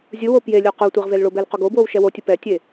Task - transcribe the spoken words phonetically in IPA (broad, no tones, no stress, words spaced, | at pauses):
zʲɯwo pje lʲoqotʷeʁ velɭobɛl qoɡobwow ʃɛwotʲɯ pɛtʲe